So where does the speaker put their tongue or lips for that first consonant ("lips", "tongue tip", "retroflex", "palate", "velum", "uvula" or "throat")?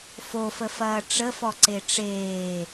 lips